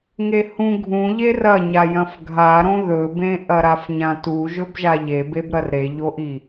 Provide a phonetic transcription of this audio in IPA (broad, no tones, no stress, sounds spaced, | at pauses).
ŋ e h ũ ɡʱ ũ ʎ e r ɐ ɲ a j ɐ̃ f ɡʱ a ɾ õ ð ɵ b ẽ ʔ ɐ ɾ a f ɲ ã t u ʒ ɵ b ʒ a ʎ e b e b ɾ ɐ r ɾ e ʎ o ʔ i